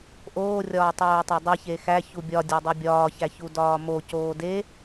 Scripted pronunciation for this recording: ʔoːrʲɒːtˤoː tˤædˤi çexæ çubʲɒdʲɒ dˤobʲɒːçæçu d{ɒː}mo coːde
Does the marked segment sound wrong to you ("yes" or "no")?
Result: no